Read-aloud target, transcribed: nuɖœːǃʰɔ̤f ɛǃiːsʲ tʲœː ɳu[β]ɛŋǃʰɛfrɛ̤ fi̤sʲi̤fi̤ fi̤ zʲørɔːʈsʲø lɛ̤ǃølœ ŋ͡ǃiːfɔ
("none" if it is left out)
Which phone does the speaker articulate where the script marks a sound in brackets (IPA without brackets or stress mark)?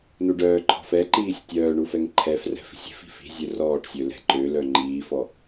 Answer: f